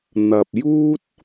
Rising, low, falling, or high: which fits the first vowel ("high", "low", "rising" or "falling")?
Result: low